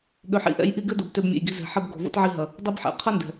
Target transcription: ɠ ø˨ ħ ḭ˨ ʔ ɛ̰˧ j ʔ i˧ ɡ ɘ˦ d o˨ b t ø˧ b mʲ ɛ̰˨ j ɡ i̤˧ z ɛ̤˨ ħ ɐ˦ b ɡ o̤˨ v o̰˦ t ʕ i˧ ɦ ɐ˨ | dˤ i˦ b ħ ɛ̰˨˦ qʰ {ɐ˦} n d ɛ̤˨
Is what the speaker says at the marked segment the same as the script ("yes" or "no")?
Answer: yes